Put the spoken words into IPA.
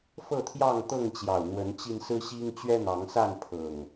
f ɤ˥˨ t̪ʰ j ɑ˥˨ ŋ t̪ ɤ˥˨ ŋ t͡ɕ j ɑ˨˩ ʊ̯ n̪ w ə˨˦ n t͡ɕ i˧ n s ɹ̩˦ ɕ i˦ ŋ t͡ɕ ɥ ɛ˦ n̪ ɑ˨˦ ŋ s a˥˨ n pʰ ɤ˨˩ ŋ

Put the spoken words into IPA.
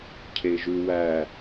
cʰ e ʒ ʉ w æ

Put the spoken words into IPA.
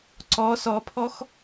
ǀ ɔ s ɔ pʰ ɔ x

